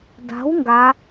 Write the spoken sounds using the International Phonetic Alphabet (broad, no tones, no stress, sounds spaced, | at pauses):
d a̤ w ŋ ɡ a